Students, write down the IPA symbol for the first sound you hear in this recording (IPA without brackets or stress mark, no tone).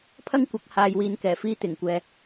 pʰ